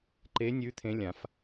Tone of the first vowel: rising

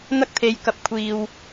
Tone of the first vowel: high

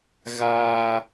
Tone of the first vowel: high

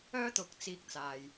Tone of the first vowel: high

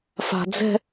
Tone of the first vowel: high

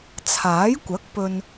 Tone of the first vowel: rising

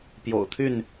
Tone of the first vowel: low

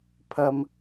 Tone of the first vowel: high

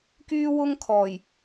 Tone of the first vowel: high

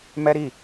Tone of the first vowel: high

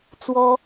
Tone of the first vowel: high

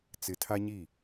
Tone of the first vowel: low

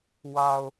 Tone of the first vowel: low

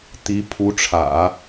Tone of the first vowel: rising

